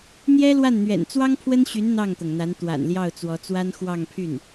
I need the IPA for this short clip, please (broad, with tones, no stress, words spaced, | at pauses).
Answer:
n̪jɛ˥ lwa˥˩nn̪ɥɛ̰˨˩n t͡swɑ˥ŋpʰwə˥nɕy˧˥n n̪ɑ˥˩ŋt̪ɤ˩ŋn̪a˧˥n t̪wa̰˨˩nljɑ˥˩ʊ̯t͡swɔ˧˥t͡swa˥n xwɑ˥˧ŋpʰy˥˩n